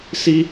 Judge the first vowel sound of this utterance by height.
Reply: high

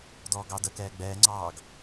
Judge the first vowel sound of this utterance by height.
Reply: mid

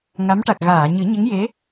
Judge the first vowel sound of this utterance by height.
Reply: low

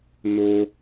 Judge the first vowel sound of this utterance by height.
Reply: mid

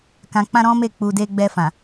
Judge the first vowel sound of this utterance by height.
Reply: low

